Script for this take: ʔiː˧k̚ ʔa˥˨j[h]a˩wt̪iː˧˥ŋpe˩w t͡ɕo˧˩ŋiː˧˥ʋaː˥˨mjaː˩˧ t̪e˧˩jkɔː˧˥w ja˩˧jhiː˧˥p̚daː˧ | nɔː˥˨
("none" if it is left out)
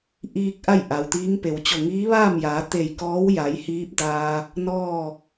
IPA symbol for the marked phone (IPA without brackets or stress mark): ʔ